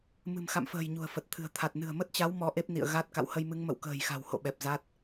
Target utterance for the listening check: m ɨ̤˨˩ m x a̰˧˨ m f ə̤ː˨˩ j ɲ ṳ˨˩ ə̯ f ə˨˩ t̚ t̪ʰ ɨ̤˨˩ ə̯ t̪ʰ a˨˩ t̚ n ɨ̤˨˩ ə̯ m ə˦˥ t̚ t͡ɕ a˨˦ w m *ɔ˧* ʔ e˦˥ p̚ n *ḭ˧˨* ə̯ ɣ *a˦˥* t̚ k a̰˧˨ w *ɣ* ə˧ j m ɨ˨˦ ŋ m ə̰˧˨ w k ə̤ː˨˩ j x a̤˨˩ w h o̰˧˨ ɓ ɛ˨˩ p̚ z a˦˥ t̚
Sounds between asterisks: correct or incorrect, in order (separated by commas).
correct, correct, correct, incorrect